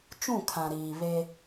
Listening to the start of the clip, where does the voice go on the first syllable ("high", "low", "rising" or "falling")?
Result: falling